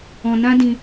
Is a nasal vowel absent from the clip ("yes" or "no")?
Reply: no